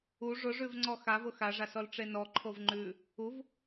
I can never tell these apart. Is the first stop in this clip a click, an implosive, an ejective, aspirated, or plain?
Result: click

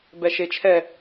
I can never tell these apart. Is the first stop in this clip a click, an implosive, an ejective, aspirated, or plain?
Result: plain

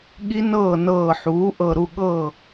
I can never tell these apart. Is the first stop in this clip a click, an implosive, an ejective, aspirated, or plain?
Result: implosive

